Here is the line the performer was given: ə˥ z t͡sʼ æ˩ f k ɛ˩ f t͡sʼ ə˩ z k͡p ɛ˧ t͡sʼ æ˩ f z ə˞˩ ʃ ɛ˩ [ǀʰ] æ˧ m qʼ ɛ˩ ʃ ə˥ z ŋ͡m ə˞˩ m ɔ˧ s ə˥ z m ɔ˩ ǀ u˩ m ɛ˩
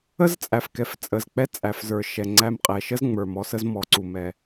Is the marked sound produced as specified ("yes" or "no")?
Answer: no